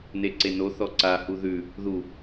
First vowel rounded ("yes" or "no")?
no